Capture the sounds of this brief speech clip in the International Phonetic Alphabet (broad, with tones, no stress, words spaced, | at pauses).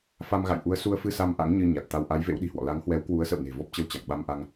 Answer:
fa˧m ɣa̰˧˨jʔu˨˦ə̯ su˧ə̯fɨ˧sa˧m ʔa̰˧˥ŋɲɨ˧ ɲa˨˩t̚t̪a˧w ʔa˨˦jvḛ˧˥wɗi̤˨˩hwɔ̰˧˨ la˨˦ŋhwɛ˨˦w kwu˨˦ə̯sə̰˧˨wne̤˨˩ vɔ˦˥p̚t͡ɕə˧w t͡ɕa̰˧˨ŋɓa˧mʔa˧ŋ